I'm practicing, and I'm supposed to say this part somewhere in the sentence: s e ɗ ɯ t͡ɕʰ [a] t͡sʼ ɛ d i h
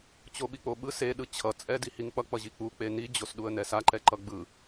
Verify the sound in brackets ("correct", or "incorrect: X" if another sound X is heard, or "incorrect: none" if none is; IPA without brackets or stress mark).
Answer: incorrect: ʌ